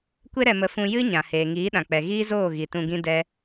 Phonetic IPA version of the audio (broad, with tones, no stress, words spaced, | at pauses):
kʷe˦ɾɛ˧mə˧ fũ˧jɨ˦ɲã˨heː˨ ŋiː˨˦ɗã˨k͡pɛ˨ ɣiː˦zoː˦˨ ɣi˨tũ˧ɡĩ˦ dɛ˦